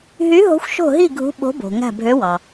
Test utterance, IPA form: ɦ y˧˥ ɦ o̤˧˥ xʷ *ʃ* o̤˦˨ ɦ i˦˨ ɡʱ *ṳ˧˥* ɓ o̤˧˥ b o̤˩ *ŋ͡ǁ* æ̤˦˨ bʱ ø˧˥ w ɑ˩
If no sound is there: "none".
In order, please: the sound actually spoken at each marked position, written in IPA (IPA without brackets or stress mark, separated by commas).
ʃ, ṳ˧˥, ŋ